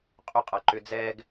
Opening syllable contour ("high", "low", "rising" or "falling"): high